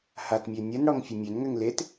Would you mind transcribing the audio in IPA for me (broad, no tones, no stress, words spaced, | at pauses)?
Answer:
hatmʲø nʲənɽɔŋfʲə mʲønŋøŋ let